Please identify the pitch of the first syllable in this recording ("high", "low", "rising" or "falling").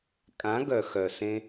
rising